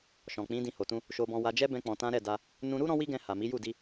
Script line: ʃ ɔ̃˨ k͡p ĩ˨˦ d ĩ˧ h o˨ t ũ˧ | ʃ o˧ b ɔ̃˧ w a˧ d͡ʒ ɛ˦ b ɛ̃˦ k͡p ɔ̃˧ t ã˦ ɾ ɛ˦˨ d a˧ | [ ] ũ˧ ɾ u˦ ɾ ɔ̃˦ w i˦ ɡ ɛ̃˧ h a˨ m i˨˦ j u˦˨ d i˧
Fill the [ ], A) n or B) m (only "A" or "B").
A